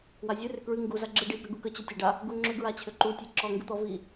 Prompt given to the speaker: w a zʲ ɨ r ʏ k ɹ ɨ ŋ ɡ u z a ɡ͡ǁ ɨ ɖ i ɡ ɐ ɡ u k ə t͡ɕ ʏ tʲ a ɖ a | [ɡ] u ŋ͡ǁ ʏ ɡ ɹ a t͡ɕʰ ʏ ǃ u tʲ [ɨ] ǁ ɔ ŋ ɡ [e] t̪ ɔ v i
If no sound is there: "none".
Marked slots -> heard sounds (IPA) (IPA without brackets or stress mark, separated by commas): ɡ, ɨ, ɨ